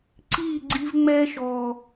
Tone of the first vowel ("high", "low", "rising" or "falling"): falling